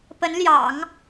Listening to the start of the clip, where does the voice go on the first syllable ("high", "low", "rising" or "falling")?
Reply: rising